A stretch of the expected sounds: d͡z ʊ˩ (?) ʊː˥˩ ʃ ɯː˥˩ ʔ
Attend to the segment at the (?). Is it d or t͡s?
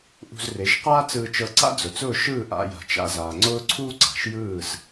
t͡s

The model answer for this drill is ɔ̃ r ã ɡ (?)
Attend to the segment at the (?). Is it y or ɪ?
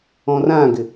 ɪ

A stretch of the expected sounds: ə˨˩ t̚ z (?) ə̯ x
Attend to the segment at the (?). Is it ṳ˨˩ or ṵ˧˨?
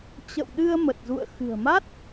ṵ˧˨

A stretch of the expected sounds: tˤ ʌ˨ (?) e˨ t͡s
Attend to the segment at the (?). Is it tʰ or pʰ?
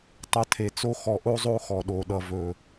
tʰ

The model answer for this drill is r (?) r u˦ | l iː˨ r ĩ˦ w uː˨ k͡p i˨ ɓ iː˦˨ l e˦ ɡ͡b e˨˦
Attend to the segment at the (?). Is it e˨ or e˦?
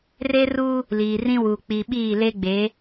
e˦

